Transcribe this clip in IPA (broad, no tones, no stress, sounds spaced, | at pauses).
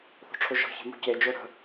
θ o̤ ʈ͡ʂʰ o ʒ ɔ̤ ç e̤ m o̤ c e d͡ʒ o ɾ ə̤